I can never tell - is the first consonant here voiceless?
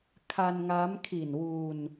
yes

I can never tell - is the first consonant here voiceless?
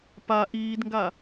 yes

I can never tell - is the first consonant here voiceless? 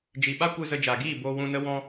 no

